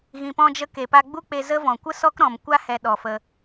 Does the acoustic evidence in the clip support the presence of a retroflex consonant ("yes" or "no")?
no